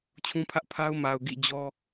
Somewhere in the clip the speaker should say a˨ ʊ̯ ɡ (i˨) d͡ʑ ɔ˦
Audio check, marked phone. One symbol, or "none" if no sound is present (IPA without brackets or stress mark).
ḭ˦˨